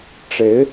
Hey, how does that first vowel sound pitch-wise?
rising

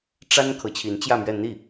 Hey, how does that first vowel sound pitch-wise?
high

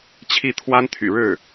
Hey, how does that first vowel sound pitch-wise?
falling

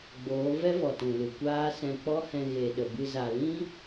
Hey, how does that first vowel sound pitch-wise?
rising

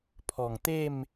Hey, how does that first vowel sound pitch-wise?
low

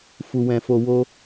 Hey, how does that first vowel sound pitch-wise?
low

